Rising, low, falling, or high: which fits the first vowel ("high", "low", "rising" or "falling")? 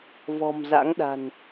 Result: low